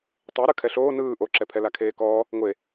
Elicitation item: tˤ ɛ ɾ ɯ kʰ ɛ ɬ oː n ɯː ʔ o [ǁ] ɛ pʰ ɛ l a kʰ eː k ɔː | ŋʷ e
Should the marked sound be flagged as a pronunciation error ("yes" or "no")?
no